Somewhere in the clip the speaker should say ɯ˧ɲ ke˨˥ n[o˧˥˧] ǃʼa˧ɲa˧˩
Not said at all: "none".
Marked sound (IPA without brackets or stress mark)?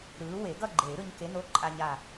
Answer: o˧˥˧